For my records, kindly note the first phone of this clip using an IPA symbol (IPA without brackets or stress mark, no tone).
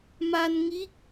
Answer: m